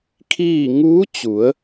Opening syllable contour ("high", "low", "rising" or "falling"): falling